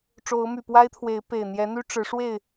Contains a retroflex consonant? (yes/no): yes